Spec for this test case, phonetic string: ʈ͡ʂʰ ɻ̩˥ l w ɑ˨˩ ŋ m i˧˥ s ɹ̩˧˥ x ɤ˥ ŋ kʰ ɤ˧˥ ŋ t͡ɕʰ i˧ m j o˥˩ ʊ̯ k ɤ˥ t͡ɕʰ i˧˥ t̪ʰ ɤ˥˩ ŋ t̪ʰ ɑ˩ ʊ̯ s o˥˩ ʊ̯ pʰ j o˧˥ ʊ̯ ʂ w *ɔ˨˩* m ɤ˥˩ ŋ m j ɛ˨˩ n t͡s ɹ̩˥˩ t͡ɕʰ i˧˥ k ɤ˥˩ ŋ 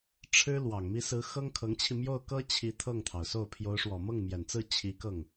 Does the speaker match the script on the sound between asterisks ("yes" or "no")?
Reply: yes